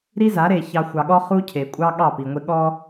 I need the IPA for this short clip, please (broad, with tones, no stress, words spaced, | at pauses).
ɾi˦za˨˦ɾe˨ çɑ˨ xʷɑ˨ɠɔ˦ χu˦cʰe˨ kʷʼɑ˦ ɠɑ˦˨pi˨ŋʷe˦ ɠɔ˦